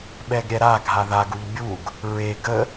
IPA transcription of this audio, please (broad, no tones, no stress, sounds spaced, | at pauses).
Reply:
ɓ ɛ ɡ ɾʲ ɛ ɾ a ɡʱ a ð a ɡ u ʎ bʲ u ɡ | ɹ e ɡ ə